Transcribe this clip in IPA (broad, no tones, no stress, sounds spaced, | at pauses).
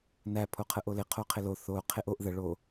n æ pʰ o qʰ ə ʔ o l ɪ qʰ o qʰ ɪ l o θ o qʰ e ʔ o ʔ ð ə ɭ o